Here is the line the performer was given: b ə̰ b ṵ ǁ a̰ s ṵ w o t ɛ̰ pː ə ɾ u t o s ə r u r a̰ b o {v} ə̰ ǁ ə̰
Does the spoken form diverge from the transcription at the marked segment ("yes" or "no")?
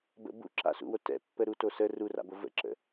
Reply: no